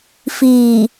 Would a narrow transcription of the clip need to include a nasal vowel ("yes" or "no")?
no